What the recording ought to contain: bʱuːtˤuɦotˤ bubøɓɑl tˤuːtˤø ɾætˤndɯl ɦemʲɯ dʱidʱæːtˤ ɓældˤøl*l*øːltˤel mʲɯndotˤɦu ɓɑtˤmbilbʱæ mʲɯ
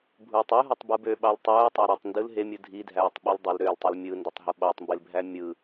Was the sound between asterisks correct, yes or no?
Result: no